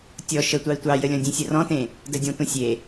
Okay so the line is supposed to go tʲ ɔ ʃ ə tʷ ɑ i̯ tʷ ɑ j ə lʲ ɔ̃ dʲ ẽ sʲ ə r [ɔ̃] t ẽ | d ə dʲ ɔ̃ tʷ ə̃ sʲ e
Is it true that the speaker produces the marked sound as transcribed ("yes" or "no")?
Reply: yes